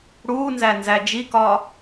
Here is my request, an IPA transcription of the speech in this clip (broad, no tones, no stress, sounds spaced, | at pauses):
ɽ uː n z æ n z æ d͡ʒ i k ɒː